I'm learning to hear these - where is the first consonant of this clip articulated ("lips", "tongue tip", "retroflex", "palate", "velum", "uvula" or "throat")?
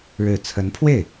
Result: retroflex